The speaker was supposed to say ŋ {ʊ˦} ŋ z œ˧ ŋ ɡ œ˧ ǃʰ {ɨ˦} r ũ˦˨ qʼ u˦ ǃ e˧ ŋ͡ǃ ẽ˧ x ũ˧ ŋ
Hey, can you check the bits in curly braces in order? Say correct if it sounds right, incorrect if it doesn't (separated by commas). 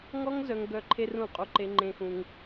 incorrect, incorrect